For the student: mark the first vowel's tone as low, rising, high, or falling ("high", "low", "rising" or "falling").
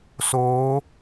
rising